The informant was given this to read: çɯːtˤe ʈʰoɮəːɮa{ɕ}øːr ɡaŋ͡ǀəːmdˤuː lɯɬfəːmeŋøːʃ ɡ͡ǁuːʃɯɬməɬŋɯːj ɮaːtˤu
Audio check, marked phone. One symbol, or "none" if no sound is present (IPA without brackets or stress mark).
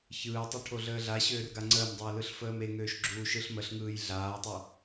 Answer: ɕ